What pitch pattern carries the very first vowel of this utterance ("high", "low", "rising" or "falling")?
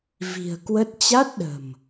low